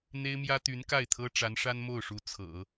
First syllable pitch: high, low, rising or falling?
high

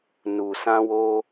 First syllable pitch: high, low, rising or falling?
low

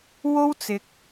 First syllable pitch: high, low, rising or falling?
high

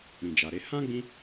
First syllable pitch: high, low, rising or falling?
low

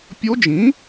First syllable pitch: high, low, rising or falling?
rising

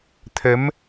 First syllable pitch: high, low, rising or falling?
rising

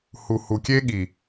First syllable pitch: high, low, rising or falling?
low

